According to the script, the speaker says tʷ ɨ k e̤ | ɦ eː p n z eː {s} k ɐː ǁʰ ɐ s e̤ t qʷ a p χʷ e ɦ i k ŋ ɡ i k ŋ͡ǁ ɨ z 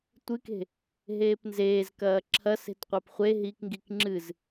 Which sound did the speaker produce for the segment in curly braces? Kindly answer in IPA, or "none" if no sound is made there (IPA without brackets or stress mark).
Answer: z